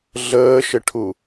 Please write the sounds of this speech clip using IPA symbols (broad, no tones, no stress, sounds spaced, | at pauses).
ɮ əː ʃ ɘ ʈʰ u